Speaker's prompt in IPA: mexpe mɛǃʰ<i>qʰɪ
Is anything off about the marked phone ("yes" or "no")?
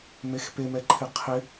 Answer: yes